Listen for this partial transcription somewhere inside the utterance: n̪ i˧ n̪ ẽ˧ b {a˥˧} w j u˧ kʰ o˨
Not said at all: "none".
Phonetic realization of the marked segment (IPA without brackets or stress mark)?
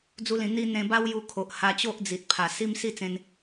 a˦